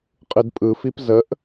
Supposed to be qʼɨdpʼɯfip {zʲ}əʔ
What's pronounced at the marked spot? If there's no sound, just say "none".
z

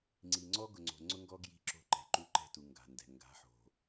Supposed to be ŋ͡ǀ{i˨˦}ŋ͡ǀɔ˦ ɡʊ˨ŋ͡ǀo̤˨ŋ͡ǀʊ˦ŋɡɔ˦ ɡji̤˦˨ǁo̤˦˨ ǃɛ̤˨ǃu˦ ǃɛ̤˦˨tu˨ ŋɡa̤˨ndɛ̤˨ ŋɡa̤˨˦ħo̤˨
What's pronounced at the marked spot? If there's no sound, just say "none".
i˨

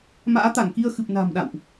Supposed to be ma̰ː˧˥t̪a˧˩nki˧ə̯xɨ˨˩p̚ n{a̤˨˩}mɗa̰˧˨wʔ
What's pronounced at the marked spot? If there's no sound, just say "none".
a̤˨˩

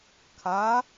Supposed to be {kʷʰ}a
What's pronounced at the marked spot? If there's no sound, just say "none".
kʰ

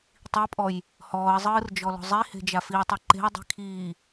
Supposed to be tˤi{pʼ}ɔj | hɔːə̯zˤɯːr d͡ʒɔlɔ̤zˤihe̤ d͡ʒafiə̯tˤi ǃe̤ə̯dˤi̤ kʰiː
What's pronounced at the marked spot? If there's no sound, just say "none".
pʼ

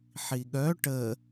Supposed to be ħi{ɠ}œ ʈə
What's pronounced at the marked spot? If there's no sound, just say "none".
ɠ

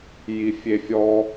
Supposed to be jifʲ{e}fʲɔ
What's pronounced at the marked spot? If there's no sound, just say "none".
e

